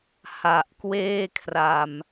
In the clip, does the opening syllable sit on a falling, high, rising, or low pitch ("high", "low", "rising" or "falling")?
low